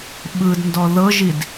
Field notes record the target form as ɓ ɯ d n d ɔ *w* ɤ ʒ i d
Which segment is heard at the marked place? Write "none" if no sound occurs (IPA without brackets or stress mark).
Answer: ð